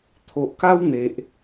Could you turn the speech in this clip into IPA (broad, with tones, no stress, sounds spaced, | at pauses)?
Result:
t̪ʰ o˨ ʔ k a˦ w n̪ e˨ ʔ